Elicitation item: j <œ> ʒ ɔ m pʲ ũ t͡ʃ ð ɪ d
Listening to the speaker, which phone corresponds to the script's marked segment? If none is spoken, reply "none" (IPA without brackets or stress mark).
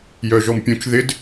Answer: œ